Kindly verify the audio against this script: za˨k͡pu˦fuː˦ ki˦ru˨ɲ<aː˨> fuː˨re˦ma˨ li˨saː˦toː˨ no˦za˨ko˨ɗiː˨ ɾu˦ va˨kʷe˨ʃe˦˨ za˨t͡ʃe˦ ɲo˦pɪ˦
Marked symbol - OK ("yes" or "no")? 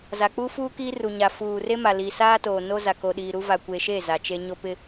no